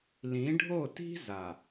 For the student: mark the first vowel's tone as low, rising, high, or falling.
rising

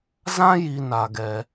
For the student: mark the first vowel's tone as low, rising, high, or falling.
high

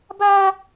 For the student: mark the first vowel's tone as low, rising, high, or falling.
high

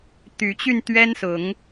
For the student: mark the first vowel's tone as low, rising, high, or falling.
rising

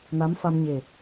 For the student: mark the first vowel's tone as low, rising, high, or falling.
rising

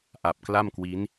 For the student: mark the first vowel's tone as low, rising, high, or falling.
low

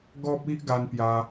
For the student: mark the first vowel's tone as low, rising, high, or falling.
high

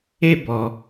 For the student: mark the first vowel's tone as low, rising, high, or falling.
high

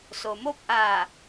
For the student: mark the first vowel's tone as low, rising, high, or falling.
low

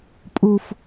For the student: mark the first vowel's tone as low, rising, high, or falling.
low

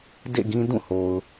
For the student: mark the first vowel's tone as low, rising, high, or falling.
falling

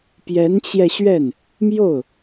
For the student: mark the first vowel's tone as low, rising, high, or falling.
rising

